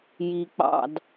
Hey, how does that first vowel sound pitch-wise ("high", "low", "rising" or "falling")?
low